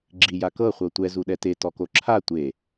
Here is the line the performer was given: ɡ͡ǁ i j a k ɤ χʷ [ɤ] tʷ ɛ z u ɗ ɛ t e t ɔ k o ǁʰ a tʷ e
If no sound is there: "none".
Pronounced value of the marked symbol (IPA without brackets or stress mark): ɤ